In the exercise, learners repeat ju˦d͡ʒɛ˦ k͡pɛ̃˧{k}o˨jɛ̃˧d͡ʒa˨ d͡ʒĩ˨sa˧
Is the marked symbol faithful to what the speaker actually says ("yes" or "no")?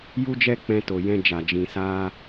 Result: no